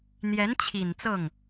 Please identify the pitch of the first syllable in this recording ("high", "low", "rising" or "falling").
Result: rising